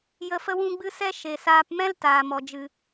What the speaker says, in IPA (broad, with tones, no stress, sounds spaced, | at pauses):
j ə˧ f ə˦ w ũ˦ ɡ͡b ɨ˦ s ɛ˦ ʃ e˨ s aː˧ p m ɛ̃˦ l t aː˨ m ɔ˨ d͡ʒ ɨ˨